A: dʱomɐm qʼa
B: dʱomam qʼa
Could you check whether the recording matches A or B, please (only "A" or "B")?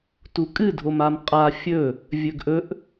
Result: B